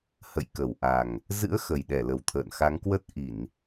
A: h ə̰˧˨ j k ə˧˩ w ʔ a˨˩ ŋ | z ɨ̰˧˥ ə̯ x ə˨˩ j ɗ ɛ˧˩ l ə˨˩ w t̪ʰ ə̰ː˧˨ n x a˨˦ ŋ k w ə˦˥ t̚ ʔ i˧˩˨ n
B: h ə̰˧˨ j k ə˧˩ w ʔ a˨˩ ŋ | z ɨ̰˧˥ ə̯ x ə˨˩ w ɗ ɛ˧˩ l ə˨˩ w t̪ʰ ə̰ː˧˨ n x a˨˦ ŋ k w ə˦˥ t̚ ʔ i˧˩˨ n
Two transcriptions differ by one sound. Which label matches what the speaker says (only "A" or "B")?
A